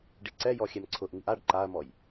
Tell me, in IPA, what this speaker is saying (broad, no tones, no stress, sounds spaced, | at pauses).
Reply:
ɖ i ǀ ɛ j ɔ xʲ ɛ m ǀʰ ʊ ʔ ŋ i ʔ a ɖ ǃ a ɐ̯ m ɔ j